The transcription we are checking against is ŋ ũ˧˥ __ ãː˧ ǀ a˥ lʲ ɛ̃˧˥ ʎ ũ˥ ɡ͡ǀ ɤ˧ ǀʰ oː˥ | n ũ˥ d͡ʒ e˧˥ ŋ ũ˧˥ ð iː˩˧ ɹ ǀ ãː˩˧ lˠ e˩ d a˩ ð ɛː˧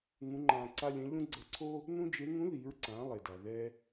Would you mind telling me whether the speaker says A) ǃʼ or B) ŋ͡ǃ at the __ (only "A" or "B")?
B